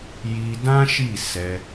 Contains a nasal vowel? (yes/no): yes